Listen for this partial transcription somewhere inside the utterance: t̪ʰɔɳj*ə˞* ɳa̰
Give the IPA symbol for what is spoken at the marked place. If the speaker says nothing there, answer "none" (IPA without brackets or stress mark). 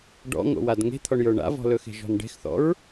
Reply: ə˞